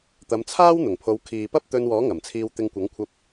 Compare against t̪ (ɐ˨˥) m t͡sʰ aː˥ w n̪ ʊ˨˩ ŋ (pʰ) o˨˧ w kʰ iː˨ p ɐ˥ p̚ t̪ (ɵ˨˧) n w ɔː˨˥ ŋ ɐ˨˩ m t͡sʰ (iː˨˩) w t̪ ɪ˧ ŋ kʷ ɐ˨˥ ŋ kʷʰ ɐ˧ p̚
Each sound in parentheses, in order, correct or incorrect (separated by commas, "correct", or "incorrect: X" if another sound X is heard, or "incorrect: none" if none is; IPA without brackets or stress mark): incorrect: ɐ˨˧, correct, incorrect: ɵ˧, incorrect: iː˧